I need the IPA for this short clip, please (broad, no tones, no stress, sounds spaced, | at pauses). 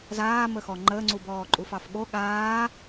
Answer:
z aː m ə x ɔ ŋ͡ǃ ə ŋ͡ǀ u b ɔː ǃʼ u f ɑ f ɠ o ɠ aː